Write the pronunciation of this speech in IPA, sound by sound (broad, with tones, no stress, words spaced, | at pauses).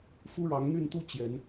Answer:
fu˦ɻɑ˨˦ŋn̪y˥˨nt̪u˦ t͡ɕjɛ˨˦n